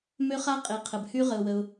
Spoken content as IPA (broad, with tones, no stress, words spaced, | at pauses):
mø˦˥χa˦˥qʼe˨ qʰə˨bhy˦˥ ʁə˨ʊ̯wə˨ʊ̯